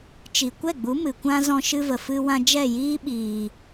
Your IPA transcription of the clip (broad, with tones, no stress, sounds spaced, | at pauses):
t͡ʃ i˨ kʷ ɛ˦˨ ɡ͡b u˨˦ m ɨ˨ kʷ ã˦ z ɔ̃˧ ʃ ɨ˧ v ə˨ f ɨ˧ w ã˧ d͡ʒ ɛ˦˨ j iː˦ ɓ iː˨